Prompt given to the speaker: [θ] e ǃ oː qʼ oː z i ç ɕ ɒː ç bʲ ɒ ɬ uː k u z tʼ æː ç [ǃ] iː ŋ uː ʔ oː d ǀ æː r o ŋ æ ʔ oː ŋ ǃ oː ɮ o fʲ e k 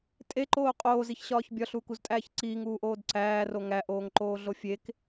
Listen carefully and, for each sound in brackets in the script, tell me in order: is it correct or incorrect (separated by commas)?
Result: incorrect, incorrect